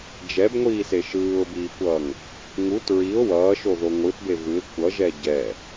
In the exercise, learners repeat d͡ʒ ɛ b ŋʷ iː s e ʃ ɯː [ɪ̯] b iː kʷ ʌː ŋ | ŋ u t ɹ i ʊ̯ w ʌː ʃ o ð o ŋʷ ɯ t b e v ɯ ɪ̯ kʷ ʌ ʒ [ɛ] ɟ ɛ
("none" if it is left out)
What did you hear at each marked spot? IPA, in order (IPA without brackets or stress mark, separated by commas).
ʊ̯, ɛ